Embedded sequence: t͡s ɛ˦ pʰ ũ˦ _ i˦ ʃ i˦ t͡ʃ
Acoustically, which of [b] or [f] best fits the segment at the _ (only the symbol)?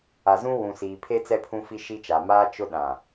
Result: f